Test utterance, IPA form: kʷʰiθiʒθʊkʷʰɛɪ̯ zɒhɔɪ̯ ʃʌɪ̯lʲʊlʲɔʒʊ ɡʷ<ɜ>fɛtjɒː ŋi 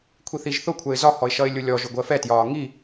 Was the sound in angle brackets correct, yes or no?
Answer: yes